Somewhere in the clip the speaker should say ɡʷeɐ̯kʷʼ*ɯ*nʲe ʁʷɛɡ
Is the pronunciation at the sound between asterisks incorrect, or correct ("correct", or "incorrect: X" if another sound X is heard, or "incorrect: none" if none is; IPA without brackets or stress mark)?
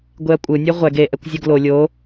correct